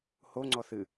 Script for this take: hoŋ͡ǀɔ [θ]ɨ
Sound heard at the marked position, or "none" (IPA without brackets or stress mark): θ